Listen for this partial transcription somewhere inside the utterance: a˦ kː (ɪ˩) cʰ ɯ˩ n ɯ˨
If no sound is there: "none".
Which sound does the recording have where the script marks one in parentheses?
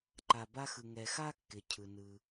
ɪ˩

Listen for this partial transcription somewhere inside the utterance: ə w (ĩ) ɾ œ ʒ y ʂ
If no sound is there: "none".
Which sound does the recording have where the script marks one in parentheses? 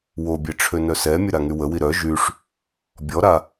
i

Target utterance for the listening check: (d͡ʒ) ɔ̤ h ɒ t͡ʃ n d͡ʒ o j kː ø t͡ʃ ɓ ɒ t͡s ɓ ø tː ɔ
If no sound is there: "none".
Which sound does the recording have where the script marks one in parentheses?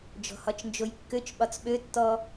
d͡ʒ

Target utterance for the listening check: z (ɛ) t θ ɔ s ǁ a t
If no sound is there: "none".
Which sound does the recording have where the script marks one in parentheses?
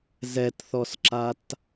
ɛ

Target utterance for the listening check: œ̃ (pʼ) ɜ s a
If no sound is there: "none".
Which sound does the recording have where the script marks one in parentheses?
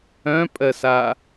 pʼ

